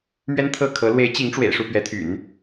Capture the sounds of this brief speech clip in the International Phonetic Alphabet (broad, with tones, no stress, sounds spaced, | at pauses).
m ɥ ɛ˥ n t̪ʰ ɤ˥˩ kʰ ɤ˧˥ l w e˧˥ ɪ̯ t͡ɕ i˧˥ ŋ ʈ͡ʂ w ḛ˨˩ ɪ̯ ʂ u˥˩ p ɥ ɛ˧˥ t̪ʰ y̰˨˩˦ n